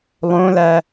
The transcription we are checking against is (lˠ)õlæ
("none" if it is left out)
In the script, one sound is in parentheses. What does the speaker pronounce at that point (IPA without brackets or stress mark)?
lˠ